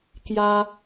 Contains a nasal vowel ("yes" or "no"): no